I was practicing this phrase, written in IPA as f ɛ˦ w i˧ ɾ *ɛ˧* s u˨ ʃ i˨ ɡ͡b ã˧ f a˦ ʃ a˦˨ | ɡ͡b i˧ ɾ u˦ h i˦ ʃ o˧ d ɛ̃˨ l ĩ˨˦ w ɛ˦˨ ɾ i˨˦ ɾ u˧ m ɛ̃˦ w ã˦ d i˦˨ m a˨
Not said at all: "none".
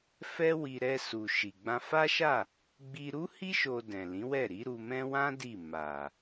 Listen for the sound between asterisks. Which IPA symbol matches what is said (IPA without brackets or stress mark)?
ɛ˧